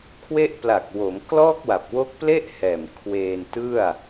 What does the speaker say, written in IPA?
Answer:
kʰwe˦˥ʔpla˨˩k̚ wo˩˦mklɔː˥˩k̚wa˨˩p̚ wo˦˥k̚ple˥˩ʔhɛː˨˩m kʰweː˧ntɯ˥˩a̯

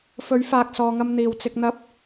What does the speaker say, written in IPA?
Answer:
fɵ˨˥ɥfaː˨k̚ sɔː˨ŋɐ˧m n̪iː˨˩wt͡sɪ˧k̚ n̪ɐ˧p̚

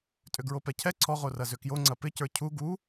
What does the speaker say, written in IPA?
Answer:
tʼʏɡɹopɛcʰɛ ǀʰɔʁo rɐzʏkjo ŋ͡ǀɐpɪcə˞ cʰu ɡu

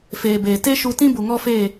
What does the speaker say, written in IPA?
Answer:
feː˨beː˨ te˦ʃu˧tĩ˦ bu˨ŋɔ˦feː˦˨

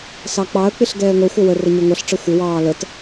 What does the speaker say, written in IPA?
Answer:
sɑk͡pɑə̯k͡pɪɬ ɡɛːŋʷʌxʷʌ wə rəɲʊŋʷʌɬʈ͡ʂʌ xʷɪwɑː lət

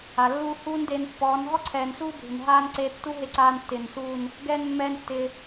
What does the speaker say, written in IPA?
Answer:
a˨lːuː˦ huː˦ndeː˧npːɔː˨˦n ɦɔ˦ǀʰɛː˨nsuː˦bʱɪ˨n ɦaː˧n ǀeː˧tːu˦ɦe˧ǀaː˧n tːɪː˨nsuː˦˨n | ɡɛː˦nmːɛː˦ntːɪː˧

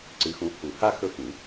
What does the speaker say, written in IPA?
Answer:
ǀɨ˨˦xũ˨˦ hu˨˩˦ ha˥ xɵ˥˧xĩ˨˩˦

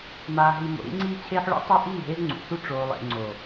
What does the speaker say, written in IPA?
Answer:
maː˨ɦi˨ mo̰˨ɾḭ˦ŋ͡ǀiː˦t͡ɕʰeː˦ħ ɭo̰˦tˤu˦ ʔiː˦˨ɦe˦zŋ͡ǀṵ˨su˦ ʈ͡ʂoː˨lˠḛ˨ŋ͡ǀo˨

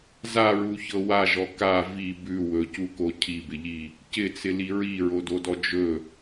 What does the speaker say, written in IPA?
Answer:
zaɹuçɤ waʒɔ ka vi bʉ wɵcuko cʰibɪʎi | cɪt͡sɪli ɹiɹododɔ d͡ʒɵ

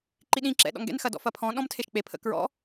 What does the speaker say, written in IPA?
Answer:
ǃiɗĩ ǁɛ̰ɗɔ̰ŋ ɡɛ̰nxɐdɔ̰ fɐpʰɔ̃ ɗɔ̃mtʰeʃk͡pepʰə̰ kɹɔ̰

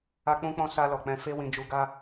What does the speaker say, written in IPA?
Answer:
a˧k͡pũ˧k͡pɔ̃˧ sa˧lɔ˨k͡pɛ̃˧fe˦ wĩ˧d͡ʒu˧ɡa˦

